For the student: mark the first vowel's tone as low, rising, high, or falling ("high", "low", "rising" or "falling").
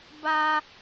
high